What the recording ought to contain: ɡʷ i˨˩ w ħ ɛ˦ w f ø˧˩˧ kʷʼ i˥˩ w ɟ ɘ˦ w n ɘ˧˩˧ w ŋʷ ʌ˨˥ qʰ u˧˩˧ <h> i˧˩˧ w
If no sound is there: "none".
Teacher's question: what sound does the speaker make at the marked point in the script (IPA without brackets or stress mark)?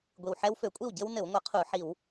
ħ